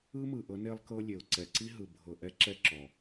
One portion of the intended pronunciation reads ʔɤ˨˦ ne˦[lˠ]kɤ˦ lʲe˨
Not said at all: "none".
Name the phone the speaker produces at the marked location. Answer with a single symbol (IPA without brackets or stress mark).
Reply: lˠ